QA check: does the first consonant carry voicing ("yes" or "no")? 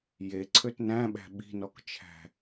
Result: yes